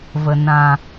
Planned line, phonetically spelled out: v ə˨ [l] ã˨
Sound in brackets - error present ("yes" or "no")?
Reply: yes